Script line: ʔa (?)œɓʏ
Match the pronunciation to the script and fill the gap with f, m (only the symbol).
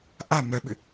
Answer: m